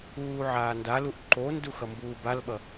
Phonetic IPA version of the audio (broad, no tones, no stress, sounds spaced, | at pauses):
uː ʕ aː n d a l u ʔ ǃ o n d u x ʌ m b uː b a l ɓ ʌ